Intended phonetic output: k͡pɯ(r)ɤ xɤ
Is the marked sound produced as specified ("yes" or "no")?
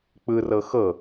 yes